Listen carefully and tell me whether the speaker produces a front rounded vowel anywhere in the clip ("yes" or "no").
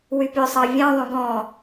yes